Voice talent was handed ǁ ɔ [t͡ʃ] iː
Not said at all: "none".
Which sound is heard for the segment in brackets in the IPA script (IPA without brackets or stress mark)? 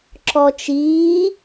t͡ʃ